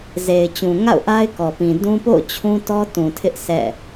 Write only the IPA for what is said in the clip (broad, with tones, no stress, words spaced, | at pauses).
ze˨ɪ̯t͡ɕũ˨ŋa̰˦˨ʊ̯ʔa˦ɪ̯ kɔ˨pĩ˨ dũ˦ po̰˦˨ʊ̯ t͡ɕʰũ˦tɔ˦tũ˨tʰɪ˦ʔ sʰɛ̰˦˨